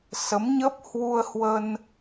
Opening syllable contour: rising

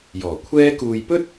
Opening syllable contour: low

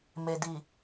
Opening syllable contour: low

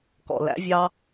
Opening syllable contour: low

